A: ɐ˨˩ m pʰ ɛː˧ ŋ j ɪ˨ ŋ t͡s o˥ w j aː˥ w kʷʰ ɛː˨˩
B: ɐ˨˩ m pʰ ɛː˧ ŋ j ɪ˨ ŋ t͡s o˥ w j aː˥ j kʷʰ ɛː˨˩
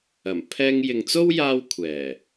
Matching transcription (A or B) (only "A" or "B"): A